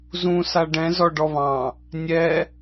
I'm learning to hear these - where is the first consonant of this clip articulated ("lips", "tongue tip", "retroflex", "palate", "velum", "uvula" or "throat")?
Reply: tongue tip